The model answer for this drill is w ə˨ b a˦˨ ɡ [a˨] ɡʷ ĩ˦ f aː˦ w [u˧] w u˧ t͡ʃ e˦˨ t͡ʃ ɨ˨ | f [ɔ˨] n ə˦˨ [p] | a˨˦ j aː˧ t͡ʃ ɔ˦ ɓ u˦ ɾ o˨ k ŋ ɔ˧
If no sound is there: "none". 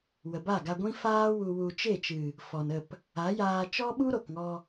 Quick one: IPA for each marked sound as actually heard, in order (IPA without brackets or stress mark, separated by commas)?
a˧, u˧, ɔ˨, p